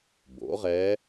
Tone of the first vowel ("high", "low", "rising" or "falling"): rising